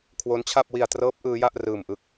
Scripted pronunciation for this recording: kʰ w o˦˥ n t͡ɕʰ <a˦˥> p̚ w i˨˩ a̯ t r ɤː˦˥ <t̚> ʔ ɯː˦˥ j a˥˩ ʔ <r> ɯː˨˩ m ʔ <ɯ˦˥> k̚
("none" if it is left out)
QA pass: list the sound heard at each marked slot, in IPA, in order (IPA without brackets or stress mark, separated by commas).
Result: a˥˩, p̚, r, ɯ˦˥